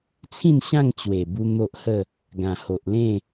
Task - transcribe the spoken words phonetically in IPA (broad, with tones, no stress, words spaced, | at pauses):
t͡sʰĩ˥˧nɕã˥˧ŋt͡ɕwe˨˩bu˧ n̪o˦ʔhə˥˧ | ɡã˨˩ ho˨ʔlẽ˥˧